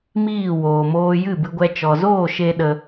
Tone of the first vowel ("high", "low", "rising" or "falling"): falling